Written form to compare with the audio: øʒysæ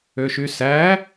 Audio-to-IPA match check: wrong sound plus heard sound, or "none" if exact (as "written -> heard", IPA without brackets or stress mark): ʒ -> ʃ